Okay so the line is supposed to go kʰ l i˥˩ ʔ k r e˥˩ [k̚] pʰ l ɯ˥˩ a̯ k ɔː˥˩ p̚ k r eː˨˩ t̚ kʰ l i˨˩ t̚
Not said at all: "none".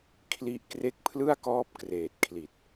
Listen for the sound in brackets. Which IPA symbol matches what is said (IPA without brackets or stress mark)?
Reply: k̚